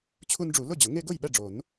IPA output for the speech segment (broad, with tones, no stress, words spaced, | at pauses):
t͡ɕʰu˦nɖ͡ʐu˨˩˦ lʊ˥˨d͡ʑʊ˨˩˦ ŋe˦ɡʊ˥˨jɓɛ˥˨ɖ͡ʐo˨˩˦n